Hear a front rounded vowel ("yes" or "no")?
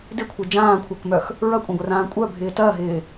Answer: yes